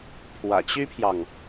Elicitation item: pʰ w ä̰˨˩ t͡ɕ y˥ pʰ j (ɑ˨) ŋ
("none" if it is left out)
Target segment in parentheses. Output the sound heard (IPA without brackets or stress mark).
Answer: ɑ˨